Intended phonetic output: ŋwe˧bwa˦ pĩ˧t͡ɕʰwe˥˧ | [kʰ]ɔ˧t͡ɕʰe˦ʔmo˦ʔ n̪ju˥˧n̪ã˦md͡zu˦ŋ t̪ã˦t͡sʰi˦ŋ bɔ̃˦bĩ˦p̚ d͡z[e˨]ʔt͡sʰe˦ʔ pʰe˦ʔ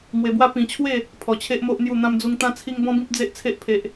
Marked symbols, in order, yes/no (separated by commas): no, no